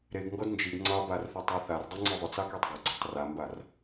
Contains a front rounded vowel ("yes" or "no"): yes